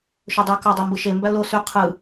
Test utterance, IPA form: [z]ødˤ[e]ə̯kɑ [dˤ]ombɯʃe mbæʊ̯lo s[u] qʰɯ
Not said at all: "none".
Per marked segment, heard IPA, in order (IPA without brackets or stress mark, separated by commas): ʃ, y, dˤ, y